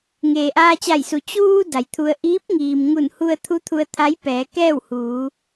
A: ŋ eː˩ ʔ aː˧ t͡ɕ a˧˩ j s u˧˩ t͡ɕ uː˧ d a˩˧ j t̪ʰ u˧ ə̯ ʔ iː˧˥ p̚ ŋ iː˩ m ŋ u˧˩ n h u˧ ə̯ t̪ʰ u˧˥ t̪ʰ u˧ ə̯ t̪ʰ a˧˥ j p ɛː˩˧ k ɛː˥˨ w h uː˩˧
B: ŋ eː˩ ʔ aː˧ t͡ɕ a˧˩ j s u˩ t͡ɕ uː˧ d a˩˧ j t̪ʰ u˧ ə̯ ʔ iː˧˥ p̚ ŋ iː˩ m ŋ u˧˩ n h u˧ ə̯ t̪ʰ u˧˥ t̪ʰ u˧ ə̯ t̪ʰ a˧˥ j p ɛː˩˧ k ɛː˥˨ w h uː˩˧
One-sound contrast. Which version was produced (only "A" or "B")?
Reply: B